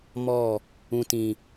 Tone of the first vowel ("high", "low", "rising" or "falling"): falling